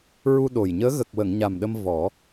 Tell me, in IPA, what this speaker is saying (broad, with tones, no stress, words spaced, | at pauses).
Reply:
ɹu˧ ɗo˨˩jɲəː˧˥ ɣə˨˩k̚wə˨˩˨ŋ ɲa˨˩mɗə˧m vɔ˨˩˦